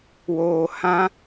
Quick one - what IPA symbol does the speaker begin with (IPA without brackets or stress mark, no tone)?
w